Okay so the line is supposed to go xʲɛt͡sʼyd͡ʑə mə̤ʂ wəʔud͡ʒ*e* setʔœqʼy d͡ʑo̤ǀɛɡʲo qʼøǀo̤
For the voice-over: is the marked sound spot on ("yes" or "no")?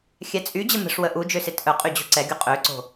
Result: no